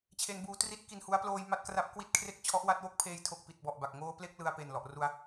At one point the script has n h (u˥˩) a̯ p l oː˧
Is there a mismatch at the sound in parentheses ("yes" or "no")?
yes